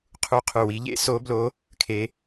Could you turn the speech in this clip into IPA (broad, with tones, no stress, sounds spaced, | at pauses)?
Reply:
qʰ u˦˥ qʰ ʉ˦˨ w i˦˥ ʎ ḛ˦˥ s o˦˥ b l o˦˥ | kʰ e˦˥